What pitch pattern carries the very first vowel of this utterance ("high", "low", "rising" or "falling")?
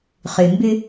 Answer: low